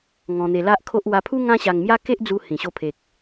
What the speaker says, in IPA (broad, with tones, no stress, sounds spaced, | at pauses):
ŋ ɔ̃˧ n̪ e˧ l a˦ ʔ kʰ o˦ ʔ w a˧ pʰ u˦ ŋ ã˦ ɕ a˧ ŋ m j a˦ k e˦ ʔ d͡z u˧ h ĩ˨˩ ɕ o˧ pʰ e˨ k̚